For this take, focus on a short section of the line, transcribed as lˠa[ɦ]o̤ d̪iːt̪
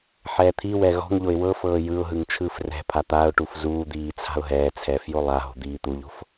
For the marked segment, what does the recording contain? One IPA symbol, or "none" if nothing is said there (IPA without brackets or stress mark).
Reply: ɦ